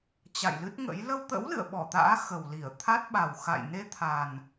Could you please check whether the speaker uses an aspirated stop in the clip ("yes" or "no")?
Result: yes